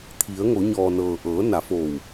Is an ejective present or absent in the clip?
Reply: absent